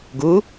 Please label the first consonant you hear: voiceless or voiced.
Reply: voiced